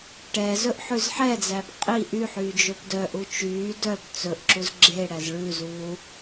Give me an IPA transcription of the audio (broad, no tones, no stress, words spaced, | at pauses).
ʈɛːzɵʔ ħʉzħɛd͡zæb qʼi ʔyħyː d͡ʒɵpdœʔu t͡ʃyː dœb t͡sɵʔǁuz ɡ͡ǁe ɽæzɭʉzuː